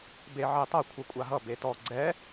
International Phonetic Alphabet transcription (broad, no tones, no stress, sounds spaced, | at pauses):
b e ʕ e tˤ ʌ kʷʰ ʌ kʷʼ a ɦ ʌ b e t ɔ ɡ͡ǀ ɛ